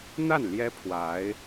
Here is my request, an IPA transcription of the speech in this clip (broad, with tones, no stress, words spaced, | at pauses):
n̪a˥˩n ljɛ˥pʰwa˧˥ɪ̯